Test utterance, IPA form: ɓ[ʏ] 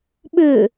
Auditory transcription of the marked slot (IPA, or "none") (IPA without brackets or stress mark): ʏ